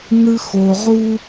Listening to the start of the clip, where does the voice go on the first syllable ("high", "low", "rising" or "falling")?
high